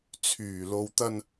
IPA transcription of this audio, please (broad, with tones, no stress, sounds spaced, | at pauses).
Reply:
t͡sʰ yː˨˩ l o˨ w t̪ ɐ˧ n